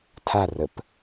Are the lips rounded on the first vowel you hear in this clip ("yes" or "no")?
no